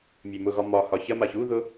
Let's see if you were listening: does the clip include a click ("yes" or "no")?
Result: no